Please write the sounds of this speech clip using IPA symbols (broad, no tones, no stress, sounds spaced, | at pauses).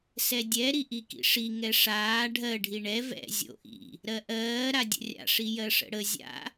s ɛ dʲ ɛ ɾ i ʔ i k ḭ ʂ i ŋ ɛ ʂ aː ɖʱ ɜ ɖʱ i ɳ ɛ v ɛ̰ zʲ o̰ ʔ ḭ | ɾ ɜ ʔ ɜː ɾ a dʲ ə̰ rʲ a̰ ʂ i j ɜ ʂ ə̰ ɽ ə zʲ a̰